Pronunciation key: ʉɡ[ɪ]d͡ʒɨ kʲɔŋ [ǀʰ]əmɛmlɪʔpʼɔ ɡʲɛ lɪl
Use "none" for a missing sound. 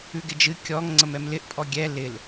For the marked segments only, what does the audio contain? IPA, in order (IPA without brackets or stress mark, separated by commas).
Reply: ɪ, ŋ͡ǀ